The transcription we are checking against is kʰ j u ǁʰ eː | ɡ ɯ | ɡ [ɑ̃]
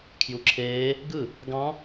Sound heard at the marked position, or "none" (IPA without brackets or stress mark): ɑ̃